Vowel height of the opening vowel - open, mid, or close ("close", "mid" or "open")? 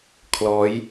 mid